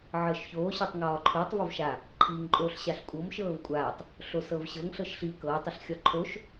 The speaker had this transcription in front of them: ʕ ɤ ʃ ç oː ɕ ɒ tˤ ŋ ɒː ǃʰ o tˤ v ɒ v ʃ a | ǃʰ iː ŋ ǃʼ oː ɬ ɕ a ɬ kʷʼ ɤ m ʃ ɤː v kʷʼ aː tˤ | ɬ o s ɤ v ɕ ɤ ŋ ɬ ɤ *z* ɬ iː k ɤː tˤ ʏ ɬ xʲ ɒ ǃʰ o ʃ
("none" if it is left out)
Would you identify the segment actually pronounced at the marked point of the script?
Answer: ʃ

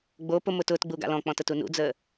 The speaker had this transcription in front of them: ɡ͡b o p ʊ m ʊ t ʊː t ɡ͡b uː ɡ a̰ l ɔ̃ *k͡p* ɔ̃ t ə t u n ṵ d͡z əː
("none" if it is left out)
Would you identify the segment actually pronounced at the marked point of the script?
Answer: k͡p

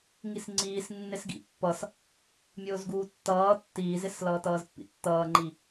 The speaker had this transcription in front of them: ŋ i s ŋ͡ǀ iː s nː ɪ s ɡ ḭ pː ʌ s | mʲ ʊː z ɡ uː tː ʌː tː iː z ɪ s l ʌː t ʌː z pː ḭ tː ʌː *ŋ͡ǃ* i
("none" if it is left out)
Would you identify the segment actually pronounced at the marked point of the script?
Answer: ŋ͡ǃ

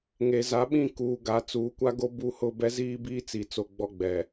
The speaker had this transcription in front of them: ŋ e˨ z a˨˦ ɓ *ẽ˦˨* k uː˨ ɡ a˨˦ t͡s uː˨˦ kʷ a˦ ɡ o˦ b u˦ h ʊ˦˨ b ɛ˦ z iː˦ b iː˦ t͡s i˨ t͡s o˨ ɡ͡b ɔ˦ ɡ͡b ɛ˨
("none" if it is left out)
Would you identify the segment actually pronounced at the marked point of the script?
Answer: ĩ˦˨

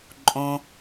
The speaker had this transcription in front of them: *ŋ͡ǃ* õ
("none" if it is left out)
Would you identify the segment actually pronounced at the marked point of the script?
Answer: ǃʼ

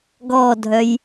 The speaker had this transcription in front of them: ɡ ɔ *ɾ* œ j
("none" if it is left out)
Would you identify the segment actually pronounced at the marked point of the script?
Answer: dʱ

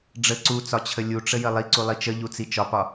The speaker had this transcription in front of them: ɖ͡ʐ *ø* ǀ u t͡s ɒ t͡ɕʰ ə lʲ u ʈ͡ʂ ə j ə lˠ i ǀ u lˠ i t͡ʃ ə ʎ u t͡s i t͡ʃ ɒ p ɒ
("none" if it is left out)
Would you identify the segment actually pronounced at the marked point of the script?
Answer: ə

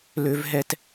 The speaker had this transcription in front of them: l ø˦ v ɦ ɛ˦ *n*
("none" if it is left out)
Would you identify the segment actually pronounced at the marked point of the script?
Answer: t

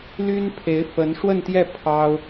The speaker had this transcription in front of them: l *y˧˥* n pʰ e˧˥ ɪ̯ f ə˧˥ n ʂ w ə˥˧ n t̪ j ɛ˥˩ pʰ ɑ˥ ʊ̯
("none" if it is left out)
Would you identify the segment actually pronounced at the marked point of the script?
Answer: y˥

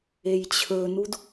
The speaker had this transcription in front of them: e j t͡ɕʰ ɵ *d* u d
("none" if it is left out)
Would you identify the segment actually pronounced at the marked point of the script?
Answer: n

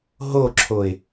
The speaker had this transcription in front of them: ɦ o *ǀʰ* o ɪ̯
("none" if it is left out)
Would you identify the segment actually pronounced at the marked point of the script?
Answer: ǁʰ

